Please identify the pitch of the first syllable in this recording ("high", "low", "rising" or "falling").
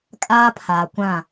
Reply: high